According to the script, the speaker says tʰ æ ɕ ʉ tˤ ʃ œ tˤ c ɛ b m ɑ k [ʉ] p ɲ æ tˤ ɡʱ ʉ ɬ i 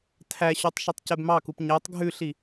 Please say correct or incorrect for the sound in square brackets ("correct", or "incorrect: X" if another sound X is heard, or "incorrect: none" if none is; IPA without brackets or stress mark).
incorrect: u